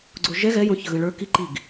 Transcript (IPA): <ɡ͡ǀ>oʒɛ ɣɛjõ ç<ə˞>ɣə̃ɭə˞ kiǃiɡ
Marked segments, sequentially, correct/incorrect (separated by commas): correct, incorrect